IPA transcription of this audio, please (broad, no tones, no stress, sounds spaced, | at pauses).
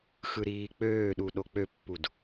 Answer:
x ɯ ɾ iː k͡p øː ɗ u ɗ o k͡p ø pː u d